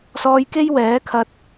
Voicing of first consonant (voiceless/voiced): voiceless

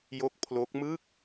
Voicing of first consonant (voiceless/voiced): voiced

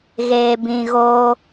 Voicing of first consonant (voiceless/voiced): voiced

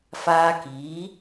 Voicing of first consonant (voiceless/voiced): voiceless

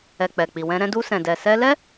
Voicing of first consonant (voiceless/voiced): voiceless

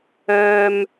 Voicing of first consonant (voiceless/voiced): voiced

